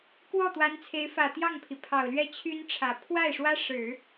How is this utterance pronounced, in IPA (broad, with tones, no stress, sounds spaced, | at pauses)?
k w ɔ˥˩ t̪ w a˧˥ n t͡sʰ e˧˥ ɪ̯ f ä˨˩ t̪ j ɑ˥˩ ŋ pʰ i˩ pʰ ɑ˨˩ ʊ̯ l ɥ ɛ˥˩ t͡ɕʰ y˥ n ʈ͡ʂʰ ä˨˩ pʰ w a˥˩ ɪ̯ ʂ w ä˥ ʂ ɻ̩˨˩˦